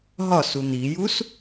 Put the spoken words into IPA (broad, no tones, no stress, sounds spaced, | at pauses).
ɦ ɒ s u n̪ i j u s